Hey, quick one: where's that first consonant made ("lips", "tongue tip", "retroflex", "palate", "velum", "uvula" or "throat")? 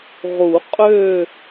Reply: uvula